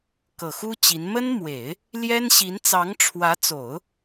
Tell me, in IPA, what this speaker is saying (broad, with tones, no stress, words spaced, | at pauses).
kɤ˨˩xu˥ t͡ɕi˧˥n mə˥nmwe˨˩˦ɪ̯ | ljɛ˥nɕi˧˥n t͡sɑ˧˥ŋʈ͡ʂʰwä˧˥t͡so˨˩˦ʊ̯